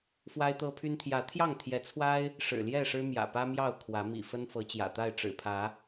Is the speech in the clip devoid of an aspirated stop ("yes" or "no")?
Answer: no